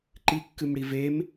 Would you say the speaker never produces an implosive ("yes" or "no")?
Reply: yes